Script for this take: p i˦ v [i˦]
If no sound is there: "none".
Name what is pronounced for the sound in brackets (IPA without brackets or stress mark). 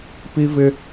ɪ˦